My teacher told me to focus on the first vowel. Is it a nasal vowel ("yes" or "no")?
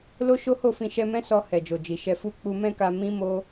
no